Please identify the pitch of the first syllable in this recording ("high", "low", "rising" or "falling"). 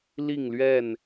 falling